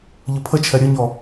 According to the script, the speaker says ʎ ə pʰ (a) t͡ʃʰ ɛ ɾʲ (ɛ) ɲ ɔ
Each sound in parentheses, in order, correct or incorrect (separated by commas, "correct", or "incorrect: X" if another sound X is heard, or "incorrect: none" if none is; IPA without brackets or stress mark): incorrect: ə, incorrect: ə